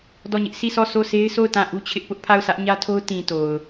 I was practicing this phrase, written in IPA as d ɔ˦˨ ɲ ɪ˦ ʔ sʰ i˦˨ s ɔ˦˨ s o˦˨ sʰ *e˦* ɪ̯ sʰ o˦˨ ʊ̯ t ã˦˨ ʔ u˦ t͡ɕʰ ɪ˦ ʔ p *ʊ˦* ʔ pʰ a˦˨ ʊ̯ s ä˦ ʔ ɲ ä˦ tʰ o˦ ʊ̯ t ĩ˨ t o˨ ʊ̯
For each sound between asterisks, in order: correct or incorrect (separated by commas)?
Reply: correct, correct